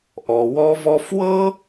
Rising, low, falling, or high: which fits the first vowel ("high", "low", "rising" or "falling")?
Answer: low